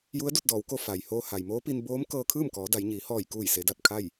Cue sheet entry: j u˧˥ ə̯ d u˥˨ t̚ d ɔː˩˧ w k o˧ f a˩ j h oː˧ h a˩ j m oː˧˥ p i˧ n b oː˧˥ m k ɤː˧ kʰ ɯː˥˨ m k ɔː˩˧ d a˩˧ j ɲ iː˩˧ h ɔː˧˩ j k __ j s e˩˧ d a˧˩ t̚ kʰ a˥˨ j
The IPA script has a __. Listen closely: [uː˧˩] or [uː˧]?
uː˧˩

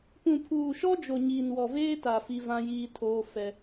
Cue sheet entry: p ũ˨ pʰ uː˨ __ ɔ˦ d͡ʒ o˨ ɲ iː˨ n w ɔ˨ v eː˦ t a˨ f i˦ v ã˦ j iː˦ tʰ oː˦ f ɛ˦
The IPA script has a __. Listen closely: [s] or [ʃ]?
ʃ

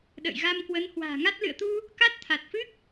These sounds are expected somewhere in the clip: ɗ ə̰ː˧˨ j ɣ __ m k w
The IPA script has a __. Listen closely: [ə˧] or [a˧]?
a˧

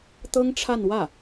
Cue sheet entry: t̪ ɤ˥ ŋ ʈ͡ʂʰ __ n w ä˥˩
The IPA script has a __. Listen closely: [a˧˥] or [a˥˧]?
a˥˧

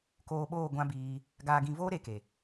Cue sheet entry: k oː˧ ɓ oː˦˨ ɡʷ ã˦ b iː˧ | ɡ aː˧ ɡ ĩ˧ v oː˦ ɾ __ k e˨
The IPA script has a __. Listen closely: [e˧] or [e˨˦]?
e˨˦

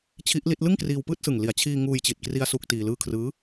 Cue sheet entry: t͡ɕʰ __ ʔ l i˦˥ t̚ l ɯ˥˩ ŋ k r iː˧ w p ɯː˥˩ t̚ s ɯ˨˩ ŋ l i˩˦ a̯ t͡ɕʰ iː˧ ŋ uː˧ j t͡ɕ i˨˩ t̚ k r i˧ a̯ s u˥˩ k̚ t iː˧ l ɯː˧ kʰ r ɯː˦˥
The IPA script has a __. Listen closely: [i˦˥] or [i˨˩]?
i˦˥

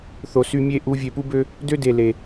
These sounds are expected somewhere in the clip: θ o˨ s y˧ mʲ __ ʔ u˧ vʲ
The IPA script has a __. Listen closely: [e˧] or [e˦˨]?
e˦˨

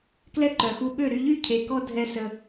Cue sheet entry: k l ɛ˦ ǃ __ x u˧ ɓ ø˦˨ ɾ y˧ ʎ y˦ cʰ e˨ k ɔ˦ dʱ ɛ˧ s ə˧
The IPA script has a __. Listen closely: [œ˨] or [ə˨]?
œ˨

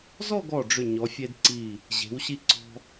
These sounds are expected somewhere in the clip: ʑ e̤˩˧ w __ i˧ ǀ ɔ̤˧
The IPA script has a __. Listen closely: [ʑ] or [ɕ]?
ɕ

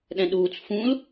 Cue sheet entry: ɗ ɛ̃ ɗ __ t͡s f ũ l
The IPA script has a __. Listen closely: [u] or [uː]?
uː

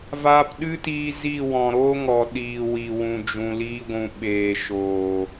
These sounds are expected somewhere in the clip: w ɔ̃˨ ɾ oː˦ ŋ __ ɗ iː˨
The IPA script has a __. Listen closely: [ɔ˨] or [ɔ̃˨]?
ɔ˨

